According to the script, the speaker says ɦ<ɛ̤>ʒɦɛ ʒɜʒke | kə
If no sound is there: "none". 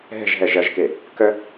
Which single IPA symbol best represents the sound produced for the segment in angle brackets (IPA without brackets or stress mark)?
ɛ̤